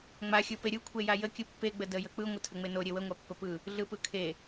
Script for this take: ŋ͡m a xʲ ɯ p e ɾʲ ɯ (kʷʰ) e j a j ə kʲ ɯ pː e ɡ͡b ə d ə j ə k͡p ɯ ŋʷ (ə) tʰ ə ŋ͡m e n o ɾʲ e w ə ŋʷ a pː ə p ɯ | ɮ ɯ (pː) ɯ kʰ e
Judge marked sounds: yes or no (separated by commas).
yes, yes, no